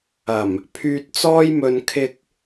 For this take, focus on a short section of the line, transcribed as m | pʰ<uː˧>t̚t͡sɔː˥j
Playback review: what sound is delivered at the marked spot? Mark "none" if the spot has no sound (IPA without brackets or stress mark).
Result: yː˧